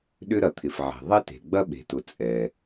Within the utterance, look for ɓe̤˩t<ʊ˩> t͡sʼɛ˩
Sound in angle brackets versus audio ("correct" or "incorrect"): correct